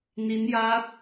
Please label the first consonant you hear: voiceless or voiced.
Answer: voiced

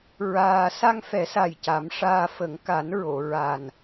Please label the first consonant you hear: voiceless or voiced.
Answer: voiced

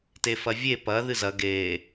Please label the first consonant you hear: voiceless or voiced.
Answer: voiceless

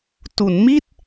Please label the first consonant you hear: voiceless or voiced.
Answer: voiceless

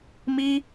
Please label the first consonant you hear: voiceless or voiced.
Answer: voiced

